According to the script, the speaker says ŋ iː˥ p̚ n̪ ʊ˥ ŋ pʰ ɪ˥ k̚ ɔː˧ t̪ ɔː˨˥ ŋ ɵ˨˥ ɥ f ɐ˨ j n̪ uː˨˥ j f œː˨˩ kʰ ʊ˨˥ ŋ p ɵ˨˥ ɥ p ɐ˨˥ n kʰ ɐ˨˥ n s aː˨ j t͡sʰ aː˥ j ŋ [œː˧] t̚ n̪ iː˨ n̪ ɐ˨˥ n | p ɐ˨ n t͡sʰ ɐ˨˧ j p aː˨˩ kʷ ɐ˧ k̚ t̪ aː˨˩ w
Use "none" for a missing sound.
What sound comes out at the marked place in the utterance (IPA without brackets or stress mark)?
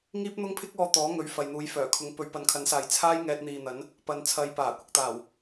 ɛː˧